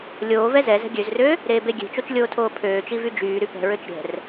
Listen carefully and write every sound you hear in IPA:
lʲ oː v ɛ z ɛ z ɛ̤ ɡʲ ø z r ø | ɾ eː b e ɡʲ e̤ t͡ʃ o t͡ʃ lʲ oː tʰ oː pʰ øː t͡ʃ i v y d͡ʒ yː ɾ y p ɛ̤ ɹ ø t͡ʃ ɾʲ ɛ̤ r

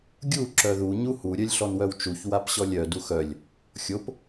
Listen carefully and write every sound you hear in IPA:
ɡʲ u ǁ œ ð u ɲ u h u ɾʲ œ lʲ ɬ ɔ n w œ w t͡ʃ u ç w a p ɕ ɔ lʲ œ d u x œ lʲ | xʲ o p

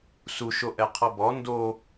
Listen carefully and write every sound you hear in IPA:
s u ʃ o ʔ ɛ qʰ ɔ b ɔ n d o

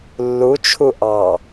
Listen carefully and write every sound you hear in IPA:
lː u t͡ʃʰ u ʔ ɑ

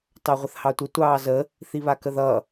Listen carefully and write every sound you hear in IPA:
t ɑ ʁʷ ə θ h ɑ tʷ ə tʷ ɑː z ə | θ i β a k ə ð ʌ

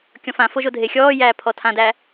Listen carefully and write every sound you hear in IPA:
kʲ ɔ̃ f ã f o ʒ o dʱ e xʲ ɔː j æː pʰ ɔ tʰ ã d æ

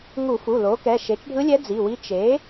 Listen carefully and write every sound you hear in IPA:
ŋ u˧˩˧ f u˩˧˩ l o˩˥ k ɛ˩˧˩ ʃ e˩˥ t͡ʃ ɖʱ ɯ˧˥ lʲ ɛ˧˥ d͡z i˩˧˩ w i˧˥ t͡ʃ e˩˥

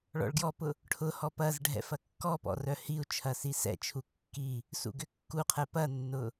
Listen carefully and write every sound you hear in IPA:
ɭ ɔ̰ ɭ ɡ j ɔ p ʊ | ʈʰ ʊ h ɔ p ɐ z ɖʱ ɛ̰ f ɐ kː ɔ p ɔ̰ r œ h i u̯ t͡ʃʰ ɐ s i s ɛ̰ t͡ʃʰ u kː i | s ṵ ɡ ʏ kː u qʰ ɛ p ɐ nː ʊ

